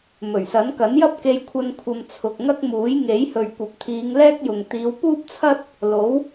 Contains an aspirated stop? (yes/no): yes